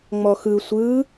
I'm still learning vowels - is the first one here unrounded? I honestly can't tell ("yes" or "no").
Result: no